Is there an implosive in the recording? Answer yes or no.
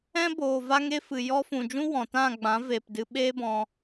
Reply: yes